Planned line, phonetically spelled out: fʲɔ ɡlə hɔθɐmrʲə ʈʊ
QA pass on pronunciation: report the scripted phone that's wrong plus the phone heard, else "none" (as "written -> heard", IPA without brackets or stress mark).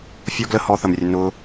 ʈ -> n